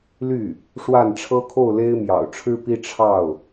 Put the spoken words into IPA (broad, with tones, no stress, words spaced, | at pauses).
ly˥˩ | ʂwa˥˩nʈ͡ʂʰɤ˥kʰo˥˩ʊ̯ le˥ɪ̯mjɑ̰˨˩ʊ̯ ʈ͡ʂʰɻ̩˥pi˥ ʈ͡ʂʰɑ˥˩ʊ̯